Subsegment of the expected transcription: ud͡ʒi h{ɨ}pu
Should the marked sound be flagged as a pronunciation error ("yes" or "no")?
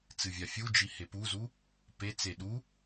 yes